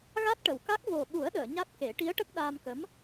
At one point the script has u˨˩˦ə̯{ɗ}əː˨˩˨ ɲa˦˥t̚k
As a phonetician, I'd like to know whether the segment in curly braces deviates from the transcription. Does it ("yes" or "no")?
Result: no